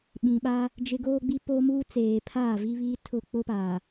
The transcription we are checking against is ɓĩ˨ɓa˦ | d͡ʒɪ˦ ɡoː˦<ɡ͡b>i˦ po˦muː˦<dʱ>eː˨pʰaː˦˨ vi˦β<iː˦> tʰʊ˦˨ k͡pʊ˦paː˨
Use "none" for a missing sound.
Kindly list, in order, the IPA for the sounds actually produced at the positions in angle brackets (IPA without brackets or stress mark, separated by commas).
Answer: ɡ͡b, t͡s, iː˦